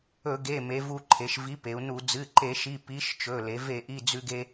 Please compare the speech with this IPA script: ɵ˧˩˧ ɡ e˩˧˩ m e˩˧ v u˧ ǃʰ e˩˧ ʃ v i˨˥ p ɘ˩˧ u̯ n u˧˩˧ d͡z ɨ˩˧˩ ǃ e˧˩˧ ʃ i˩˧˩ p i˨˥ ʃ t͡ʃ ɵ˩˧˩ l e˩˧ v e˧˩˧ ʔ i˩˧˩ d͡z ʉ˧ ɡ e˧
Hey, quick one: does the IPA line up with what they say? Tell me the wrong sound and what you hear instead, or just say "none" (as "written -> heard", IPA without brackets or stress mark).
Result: ɘ˩˧ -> e˩˧